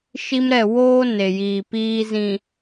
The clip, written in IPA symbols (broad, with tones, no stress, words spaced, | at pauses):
ʃi˦mɾɛ˦˨ woː˦ ne˨jiː˨piː˦ zĩ˨